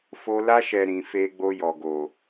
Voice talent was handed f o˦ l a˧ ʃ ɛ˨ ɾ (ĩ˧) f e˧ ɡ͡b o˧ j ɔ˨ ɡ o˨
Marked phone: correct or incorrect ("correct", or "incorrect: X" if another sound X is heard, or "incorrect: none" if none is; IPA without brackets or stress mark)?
incorrect: ĩ˨